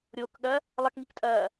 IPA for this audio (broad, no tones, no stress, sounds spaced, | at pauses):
ɾʲ o k ɠ ɐ | lˠ ɐ k ŋ i k tʼ ɐː